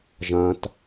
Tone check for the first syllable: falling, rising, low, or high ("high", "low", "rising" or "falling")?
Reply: low